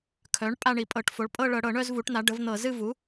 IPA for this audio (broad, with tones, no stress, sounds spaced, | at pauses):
kʰ œ˩˥ ɳ pʼ a˦˨ ɳ i˧˩˧ pʼ ɤ˧˩˧ ʈ f o˩˥ ɭ pʼ ɤ˦˨ ɭ ɤ˧˩˧ ɽ ɤ˧˩˧ ɳ œ˦˨ z v u˩˥ ʈ n̪ a˩˥ ɖ ə˩˥ v n̪ ɤ˧˩˧ z ɨ˦˨ v u˩˥